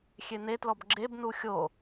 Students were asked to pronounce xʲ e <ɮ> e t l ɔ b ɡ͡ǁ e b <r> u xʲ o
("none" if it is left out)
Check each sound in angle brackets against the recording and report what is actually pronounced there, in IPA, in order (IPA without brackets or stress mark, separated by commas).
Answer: n̪, n